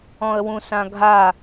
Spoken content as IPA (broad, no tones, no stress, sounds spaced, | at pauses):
ɔ̃ ə̯ w ũ s ã ɡʱ a